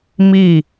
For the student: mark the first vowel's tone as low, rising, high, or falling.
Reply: falling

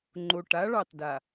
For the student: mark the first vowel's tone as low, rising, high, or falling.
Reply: low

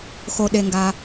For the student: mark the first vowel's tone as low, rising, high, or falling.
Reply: low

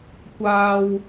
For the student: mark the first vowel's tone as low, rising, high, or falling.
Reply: high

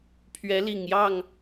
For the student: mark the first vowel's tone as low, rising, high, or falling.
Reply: rising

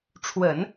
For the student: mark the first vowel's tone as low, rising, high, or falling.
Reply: low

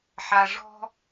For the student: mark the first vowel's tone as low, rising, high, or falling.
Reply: low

